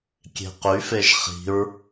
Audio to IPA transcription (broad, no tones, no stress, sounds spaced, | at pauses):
kʲ e̤ q y f e ʒ χ i̤ ɹ